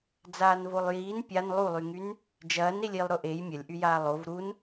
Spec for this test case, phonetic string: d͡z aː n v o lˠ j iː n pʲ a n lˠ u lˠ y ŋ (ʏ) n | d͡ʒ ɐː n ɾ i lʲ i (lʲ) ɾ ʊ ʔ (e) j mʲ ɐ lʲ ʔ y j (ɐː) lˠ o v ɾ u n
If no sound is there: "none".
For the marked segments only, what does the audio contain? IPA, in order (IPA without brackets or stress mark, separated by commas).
y, lˠ, e, aː